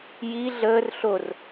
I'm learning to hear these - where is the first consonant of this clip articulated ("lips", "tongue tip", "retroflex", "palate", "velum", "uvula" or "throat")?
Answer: palate